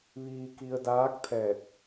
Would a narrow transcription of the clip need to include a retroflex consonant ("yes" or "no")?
no